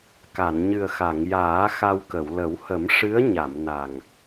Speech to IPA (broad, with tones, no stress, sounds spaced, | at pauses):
k a˨˩˨ n ɲ ɨ˨˩ ə̯ x a˨˩˨ ŋ j aː˨˩˦ x a˧ w k ə˨˩˨ w l ə˨˩˦ w h ə˨˩˦ m ʂ ɨ˧˥ ə̯ ɲ a˨˩˨ m n a˨˩ ŋ